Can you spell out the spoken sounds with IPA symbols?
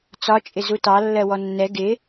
t͡s ɒ t͡ʃʼ ɪ z u t ɑ lː ɜ w ɔ nː ɛ ɡ ɪ

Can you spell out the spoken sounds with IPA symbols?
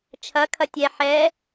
t͡ʃʰ ɐ kʰ ɐ tʲ ɛ ħ ɛ

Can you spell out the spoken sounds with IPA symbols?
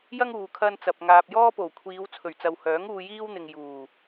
j ɐ˥ ŋ uː˨ kʰ ɐ˥ n t͡s ɐ˧ p̚ ŋ aː˧ p̚ j ɔː˥ p o˨˩ w kʷʰ iː˨˧ w t͡sʰ ɵ˨˩ ɥ t͡s ɐ˨ w h œː˨˥ ŋ uː˧ j iː˥ w n̪ ɪ˨ ŋ j uː˨˩

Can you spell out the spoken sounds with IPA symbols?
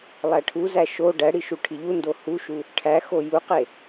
lˠ æ ʈʰ u z æ ʃ o ɖ æ ɽ i ʃ u ʈʰ i ʎ u n d o h u ʃ u | ʈʰ æ x o j u q e

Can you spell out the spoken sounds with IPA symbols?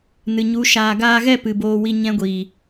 n ɨ˨ ɲ u˨˦ ʃ aː˨ ɡ aː˧ ɣ ɛ˦˨ p ɨ˨ b oː˧ w i˧ ɲ ɛ̃˦ ɡʷ iː˨

